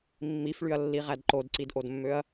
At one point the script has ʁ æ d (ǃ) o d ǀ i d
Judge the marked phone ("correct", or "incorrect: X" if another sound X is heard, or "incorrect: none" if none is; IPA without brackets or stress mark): correct